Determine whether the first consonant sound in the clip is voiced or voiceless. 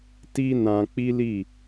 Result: voiceless